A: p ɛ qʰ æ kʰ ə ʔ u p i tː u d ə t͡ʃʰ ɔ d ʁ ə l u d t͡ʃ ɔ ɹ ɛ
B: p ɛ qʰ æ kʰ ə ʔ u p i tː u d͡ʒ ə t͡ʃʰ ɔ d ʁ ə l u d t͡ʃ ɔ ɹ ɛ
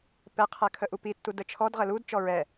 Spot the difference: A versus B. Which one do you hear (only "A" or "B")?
A